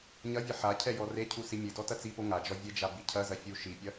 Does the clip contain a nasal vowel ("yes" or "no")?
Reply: no